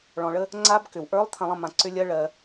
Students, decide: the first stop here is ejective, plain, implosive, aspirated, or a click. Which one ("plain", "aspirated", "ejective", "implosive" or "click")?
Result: click